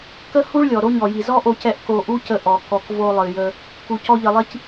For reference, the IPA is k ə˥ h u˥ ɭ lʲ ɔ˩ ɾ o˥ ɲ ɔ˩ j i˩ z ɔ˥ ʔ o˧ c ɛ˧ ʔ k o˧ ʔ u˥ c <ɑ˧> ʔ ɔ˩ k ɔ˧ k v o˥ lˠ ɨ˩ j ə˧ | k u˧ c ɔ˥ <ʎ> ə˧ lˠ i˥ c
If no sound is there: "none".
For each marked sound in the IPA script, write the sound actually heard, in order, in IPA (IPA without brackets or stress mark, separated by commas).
ə˧, ʎ